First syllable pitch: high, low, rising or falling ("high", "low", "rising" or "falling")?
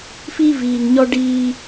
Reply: high